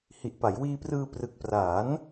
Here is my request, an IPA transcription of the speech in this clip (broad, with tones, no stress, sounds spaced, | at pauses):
h i˨˩ ʔ p a˩˦ j w iː˧ p r ɯː˧ p r ɯ˨˩ k̚ p r aː˩˦ n